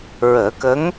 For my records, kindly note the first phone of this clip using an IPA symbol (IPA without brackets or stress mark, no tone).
ɹ